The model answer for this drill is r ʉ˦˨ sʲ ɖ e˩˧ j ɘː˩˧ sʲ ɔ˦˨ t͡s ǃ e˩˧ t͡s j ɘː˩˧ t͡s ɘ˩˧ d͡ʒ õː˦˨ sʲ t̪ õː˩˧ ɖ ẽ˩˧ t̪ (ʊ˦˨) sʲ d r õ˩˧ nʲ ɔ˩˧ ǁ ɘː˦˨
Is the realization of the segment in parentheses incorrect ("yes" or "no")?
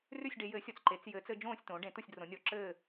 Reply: no